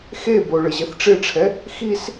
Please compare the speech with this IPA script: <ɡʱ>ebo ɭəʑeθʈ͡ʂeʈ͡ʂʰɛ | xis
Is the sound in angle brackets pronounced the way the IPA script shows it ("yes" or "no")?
no